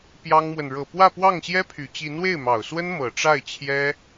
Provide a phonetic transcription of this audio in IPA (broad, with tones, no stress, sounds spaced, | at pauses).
p j ɑ˥ ŋ m w ə˨ n ɻ ɤ˨˩ p w ä˥˧ p w ɑ˥˩ ŋ ɕ j ɛ˥ pʰ y˨˩ t͡ɕ i˧˥ n w e˥˩ ɪ̯ m ɑ˨˩ ʊ̯ s w ə˥ n m ɤ˨˩ ʈ͡ʂ a˥˩ ɪ̯ t͡ɕʰ j ɛ˥